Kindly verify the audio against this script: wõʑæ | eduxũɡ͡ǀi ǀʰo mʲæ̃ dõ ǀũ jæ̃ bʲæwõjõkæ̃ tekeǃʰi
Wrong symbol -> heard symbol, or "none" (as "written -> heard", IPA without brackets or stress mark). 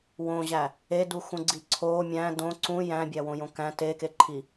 none